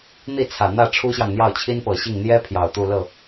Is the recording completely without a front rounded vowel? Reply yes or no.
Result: yes